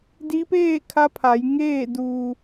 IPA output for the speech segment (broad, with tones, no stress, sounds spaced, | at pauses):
d i˧˥ p eː˥˨ kʰ a˧˥ pʰ a˩˧ j ŋ eː˥˨ d uː˧